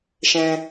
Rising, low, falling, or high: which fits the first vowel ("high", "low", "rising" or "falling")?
low